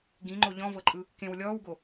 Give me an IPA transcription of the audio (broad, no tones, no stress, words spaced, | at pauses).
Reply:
ɡĩŋ͡ǃo ʎɔ̃vɤǃʼɯ | kẽw lʲɔːwɡo